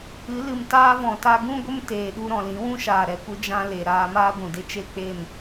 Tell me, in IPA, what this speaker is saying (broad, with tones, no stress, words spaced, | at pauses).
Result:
ɨ˨˦lɨ˨mtaː˦ vɔ̃˨ta˧ ɡũ˦ɡʷə˦m teː˨ɗu˧ɾɔ̃˨ lĩ˨˦wũ˦ʃaː˨ɾɛ˨ kʷɨ˦d͡ʒã˦le˨ ɾaː˧maː˦ ɡʷũ˨de˦ t͡ʃe˦k͡pe˦˨m